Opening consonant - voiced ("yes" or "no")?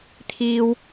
no